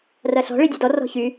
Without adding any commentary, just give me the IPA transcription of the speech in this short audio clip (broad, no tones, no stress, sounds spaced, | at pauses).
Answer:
r ɐ ɬ ɔ̤ ɭ i dʲ ɐ d ɔ r ɔ̤ ç y